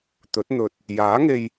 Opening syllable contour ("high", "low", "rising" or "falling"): rising